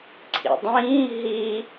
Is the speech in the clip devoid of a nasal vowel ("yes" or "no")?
no